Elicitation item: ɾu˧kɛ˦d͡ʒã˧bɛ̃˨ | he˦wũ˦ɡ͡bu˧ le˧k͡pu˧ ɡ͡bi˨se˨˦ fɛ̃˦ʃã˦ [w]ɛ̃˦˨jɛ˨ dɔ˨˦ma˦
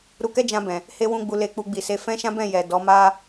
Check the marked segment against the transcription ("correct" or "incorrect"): incorrect